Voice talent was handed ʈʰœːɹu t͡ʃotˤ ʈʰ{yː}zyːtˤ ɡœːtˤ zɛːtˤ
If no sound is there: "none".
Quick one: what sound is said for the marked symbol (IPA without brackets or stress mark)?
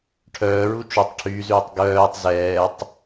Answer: yː